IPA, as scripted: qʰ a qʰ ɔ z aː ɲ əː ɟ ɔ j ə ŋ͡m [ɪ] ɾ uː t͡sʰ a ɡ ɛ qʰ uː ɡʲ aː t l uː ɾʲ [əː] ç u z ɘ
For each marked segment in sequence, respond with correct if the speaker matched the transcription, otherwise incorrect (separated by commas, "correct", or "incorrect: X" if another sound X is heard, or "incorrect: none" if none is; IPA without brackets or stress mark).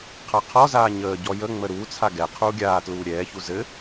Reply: incorrect: ə, incorrect: ɛː